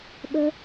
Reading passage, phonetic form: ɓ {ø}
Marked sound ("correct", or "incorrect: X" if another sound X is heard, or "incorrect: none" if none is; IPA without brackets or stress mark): incorrect: ə